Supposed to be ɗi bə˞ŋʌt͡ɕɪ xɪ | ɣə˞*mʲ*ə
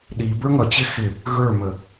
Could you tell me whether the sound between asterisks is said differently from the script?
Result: yes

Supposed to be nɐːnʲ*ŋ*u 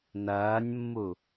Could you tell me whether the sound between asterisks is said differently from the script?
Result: yes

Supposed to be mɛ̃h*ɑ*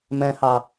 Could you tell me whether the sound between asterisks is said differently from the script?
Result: no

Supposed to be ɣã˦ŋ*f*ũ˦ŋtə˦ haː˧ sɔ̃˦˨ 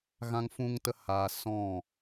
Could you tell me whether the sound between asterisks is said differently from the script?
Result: no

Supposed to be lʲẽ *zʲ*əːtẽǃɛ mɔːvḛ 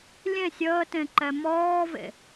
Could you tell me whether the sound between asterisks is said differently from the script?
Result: yes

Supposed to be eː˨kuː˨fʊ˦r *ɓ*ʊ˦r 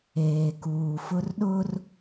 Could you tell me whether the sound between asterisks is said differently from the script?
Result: yes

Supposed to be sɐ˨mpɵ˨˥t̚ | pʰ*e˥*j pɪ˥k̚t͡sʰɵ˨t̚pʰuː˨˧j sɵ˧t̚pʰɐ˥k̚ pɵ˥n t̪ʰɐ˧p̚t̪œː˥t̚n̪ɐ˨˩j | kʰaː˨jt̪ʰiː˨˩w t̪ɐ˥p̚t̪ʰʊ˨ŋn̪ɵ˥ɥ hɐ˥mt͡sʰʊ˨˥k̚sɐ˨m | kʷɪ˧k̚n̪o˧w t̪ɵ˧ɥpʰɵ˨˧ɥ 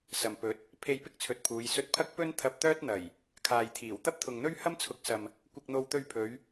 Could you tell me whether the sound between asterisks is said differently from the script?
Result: yes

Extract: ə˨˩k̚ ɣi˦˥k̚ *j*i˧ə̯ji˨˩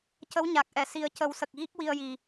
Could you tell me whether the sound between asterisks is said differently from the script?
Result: yes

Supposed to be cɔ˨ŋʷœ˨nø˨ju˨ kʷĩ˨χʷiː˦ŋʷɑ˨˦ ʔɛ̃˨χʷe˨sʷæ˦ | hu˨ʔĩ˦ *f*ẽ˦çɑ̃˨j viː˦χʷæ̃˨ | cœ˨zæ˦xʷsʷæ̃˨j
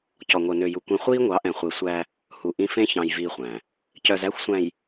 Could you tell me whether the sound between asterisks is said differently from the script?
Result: no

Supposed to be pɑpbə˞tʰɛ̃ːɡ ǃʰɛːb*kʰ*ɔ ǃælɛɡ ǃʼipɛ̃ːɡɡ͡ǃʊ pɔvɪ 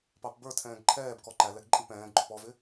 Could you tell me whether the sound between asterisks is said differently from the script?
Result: yes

